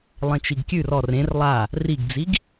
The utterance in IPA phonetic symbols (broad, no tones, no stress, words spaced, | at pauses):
lˠẽt͡ʃiɡkʲʉr ɔr ẽr lˠa | riɡd͡ziɡ